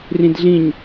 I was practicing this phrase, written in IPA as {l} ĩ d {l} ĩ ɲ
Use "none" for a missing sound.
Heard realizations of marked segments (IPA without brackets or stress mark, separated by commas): r, ɮ